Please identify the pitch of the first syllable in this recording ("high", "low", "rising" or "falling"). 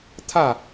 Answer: falling